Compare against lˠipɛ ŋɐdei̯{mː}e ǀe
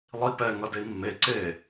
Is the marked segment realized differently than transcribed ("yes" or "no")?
no